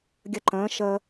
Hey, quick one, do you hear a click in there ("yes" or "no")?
yes